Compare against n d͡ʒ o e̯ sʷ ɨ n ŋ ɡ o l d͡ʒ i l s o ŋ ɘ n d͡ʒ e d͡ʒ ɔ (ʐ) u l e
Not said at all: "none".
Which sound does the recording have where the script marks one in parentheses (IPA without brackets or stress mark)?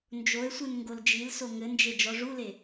ʐ